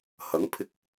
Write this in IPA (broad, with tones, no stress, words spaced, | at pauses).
hɐ˨˥ŋpʰɪ˧k̚